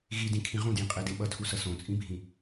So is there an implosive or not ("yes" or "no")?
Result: yes